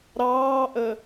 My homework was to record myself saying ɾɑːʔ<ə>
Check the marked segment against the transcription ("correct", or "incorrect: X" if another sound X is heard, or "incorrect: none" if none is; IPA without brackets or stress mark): correct